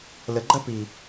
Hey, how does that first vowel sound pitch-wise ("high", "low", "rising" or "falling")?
low